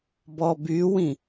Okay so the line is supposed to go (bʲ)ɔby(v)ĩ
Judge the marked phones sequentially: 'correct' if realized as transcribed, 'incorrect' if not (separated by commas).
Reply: incorrect, incorrect